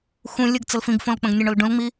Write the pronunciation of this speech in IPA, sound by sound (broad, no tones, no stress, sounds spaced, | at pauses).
x ũ lʲ ə ɡ t͡s ə l f ĩ ɡ f õ l k͡p ə̃ ɡ nʲ ə ɳ o l ɖ ũ l ŋ͡m i